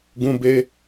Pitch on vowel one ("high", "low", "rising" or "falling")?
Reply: high